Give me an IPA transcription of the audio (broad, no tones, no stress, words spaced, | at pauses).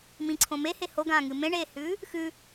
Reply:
mĩǀʰõ mehe hoɡãːŋɨ mẽɳeːhʉː | xʉ